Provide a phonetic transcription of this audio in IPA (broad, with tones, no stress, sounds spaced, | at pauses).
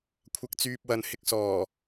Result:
kʷʰ ɐ˧ k̚ t͡s yː˧ p̚ w ɐ˨˧ n h ɪ˧ k̚ s ɔː˨˩